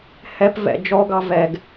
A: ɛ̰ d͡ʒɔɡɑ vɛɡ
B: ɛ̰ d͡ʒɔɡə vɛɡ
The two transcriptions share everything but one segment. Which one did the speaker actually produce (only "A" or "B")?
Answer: A